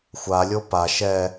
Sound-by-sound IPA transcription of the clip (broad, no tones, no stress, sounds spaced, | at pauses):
xʷ a lʲ o p a ʃ ɛ